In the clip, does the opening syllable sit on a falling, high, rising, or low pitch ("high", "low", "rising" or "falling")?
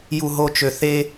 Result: low